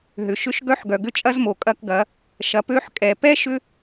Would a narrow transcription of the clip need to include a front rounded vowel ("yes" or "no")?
yes